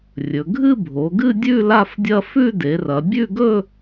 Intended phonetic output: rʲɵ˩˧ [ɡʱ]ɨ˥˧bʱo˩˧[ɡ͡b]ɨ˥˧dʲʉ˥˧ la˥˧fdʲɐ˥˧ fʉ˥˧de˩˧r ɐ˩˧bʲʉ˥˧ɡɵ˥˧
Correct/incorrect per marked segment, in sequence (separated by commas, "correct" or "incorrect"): correct, incorrect